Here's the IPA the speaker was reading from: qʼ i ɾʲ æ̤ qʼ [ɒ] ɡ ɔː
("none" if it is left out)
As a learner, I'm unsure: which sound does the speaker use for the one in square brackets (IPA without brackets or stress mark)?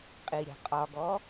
ɒ